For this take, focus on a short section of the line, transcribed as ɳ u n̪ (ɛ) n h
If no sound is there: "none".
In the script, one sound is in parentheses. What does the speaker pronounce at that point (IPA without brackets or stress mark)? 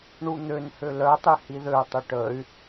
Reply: ø